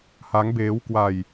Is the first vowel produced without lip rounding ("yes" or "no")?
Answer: yes